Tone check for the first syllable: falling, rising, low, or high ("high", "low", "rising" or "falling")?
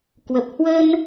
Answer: low